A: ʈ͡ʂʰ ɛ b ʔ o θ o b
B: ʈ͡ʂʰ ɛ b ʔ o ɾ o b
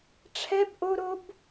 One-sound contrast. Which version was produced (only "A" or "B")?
B